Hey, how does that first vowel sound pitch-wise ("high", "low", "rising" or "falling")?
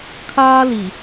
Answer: high